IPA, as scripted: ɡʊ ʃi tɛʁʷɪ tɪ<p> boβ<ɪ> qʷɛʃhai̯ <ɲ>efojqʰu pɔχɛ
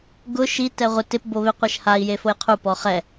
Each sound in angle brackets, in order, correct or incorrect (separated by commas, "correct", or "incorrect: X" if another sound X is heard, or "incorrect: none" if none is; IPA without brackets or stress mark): correct, correct, incorrect: j